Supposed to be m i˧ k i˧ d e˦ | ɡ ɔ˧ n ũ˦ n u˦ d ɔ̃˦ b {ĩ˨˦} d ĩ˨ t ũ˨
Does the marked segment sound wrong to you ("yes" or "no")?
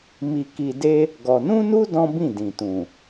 yes